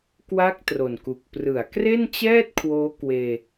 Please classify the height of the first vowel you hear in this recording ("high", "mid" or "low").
low